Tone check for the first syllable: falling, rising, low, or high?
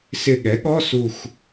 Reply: falling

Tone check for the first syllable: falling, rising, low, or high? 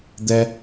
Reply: high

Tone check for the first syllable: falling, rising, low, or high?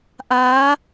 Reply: rising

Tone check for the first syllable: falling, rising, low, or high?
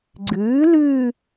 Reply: rising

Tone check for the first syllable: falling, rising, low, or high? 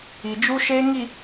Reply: low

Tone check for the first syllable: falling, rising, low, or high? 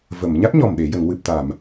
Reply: low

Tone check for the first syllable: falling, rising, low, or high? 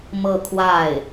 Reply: falling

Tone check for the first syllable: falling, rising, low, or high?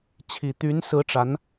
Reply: low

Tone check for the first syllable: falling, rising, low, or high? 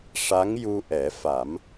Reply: rising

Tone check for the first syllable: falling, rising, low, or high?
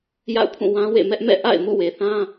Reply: falling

